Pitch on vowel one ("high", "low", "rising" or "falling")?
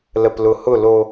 low